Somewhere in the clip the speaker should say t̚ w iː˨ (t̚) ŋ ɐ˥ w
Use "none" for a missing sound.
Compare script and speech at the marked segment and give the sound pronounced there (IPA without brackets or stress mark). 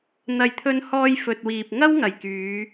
p̚